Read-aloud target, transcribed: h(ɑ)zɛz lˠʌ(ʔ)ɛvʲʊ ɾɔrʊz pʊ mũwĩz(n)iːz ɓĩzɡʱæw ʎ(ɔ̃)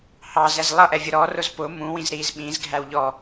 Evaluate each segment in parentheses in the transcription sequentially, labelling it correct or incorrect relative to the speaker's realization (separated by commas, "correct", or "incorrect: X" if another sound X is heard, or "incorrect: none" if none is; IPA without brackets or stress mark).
correct, correct, incorrect: ɾ, incorrect: ɔ